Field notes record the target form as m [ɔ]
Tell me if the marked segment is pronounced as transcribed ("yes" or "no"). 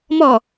yes